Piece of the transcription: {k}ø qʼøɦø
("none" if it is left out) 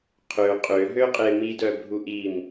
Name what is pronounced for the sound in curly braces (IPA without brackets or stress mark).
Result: qʰ